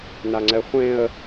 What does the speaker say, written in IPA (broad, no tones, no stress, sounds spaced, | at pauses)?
n a ŋ͡ǀ ɛ χʷ ẽ ə̯